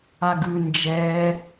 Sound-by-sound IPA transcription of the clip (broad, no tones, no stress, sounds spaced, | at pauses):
a ɡ ɯ n d͡ʒ ɛː